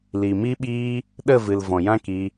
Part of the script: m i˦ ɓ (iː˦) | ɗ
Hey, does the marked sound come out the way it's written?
yes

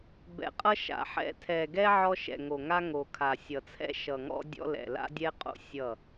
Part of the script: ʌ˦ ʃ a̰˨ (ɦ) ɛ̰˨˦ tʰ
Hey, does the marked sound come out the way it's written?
no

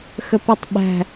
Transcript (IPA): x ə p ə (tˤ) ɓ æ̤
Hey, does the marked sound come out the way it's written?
yes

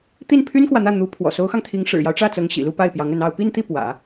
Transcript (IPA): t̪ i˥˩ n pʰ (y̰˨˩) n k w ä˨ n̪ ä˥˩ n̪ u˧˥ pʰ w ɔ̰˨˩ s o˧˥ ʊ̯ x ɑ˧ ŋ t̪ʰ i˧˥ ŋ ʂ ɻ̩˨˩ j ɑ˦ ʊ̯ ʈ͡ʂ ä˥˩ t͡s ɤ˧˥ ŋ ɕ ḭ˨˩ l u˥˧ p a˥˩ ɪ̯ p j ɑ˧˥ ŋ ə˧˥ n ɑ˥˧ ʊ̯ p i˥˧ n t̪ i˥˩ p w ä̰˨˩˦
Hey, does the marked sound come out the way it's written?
no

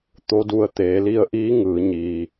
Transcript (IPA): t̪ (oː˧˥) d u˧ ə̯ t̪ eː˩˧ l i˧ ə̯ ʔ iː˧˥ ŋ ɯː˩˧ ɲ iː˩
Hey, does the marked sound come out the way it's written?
no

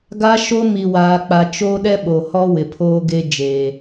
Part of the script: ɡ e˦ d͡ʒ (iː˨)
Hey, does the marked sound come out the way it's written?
no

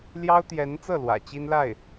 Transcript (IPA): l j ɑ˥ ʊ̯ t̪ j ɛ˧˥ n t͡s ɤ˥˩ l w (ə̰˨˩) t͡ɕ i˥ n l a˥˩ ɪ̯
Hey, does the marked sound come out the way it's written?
no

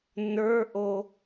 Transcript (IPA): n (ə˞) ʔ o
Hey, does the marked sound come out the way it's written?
yes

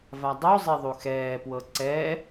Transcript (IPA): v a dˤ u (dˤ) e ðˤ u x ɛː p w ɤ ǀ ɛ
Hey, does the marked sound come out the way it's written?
no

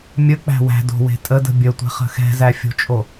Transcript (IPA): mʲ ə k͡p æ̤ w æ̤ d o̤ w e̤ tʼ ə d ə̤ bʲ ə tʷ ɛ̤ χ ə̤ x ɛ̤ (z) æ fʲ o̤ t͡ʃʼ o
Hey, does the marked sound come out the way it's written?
yes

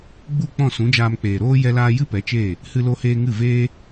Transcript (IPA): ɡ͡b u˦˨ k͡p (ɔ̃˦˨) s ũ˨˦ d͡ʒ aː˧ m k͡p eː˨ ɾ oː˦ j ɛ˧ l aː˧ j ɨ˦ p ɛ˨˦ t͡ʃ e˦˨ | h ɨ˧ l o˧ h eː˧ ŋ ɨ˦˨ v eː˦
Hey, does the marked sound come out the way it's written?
yes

